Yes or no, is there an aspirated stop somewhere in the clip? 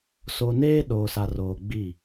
no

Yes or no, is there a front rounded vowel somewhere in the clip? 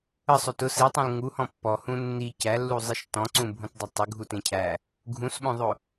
no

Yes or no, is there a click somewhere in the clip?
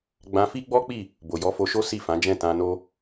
no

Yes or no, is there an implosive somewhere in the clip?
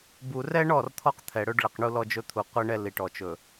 no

